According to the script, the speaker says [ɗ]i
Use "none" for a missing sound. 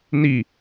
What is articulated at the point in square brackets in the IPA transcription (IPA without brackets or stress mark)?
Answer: n